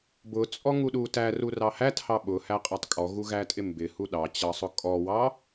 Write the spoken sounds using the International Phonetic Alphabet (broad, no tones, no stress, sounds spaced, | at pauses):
b ʊ t͡sʼ ɔ ŋ u ɗ u t æ r u r ɑ h æ t h ɑ ɓ ʊ h æ qʼ æ tˤ kʼ ɔ ɣ u ɣ æ tʼ ɪ m b ɪ h u ɗ ɑ t͡ɕ ɑ sˤ ʊ kʼ ɔ w ɑ